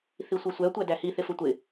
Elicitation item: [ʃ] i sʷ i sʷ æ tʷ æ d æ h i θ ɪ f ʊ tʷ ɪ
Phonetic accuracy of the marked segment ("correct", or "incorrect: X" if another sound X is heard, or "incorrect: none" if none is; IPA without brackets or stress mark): incorrect: θ